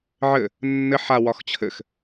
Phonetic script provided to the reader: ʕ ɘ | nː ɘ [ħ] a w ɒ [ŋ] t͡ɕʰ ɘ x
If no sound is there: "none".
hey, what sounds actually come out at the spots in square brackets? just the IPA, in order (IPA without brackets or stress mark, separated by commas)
ħ, x